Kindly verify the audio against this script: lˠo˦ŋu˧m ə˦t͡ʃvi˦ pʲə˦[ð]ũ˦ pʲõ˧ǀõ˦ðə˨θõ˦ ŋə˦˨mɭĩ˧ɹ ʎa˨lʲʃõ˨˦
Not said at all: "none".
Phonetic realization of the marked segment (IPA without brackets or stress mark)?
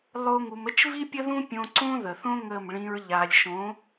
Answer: ð